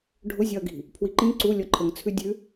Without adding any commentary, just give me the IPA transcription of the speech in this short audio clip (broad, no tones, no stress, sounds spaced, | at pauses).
ɖʱ ʊ zʲ ɒ ɐ̯ ɡ i̤ | pʰ w i ǃ ĩ ǀ u lʲ ɔ ǃʰ ə ŋ t͡sʰ ʉ dʲ ʉ